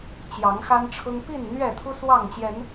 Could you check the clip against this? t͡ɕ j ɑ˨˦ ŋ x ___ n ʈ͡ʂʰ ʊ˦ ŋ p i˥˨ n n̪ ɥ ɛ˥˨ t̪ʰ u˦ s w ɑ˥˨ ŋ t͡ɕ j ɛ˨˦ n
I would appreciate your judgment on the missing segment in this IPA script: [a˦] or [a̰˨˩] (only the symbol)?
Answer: a˦